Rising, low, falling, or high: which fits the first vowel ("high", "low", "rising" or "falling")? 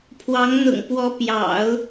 rising